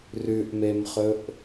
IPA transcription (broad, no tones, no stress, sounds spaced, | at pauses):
r ʉ ʔ m e m χ ɵ ʔ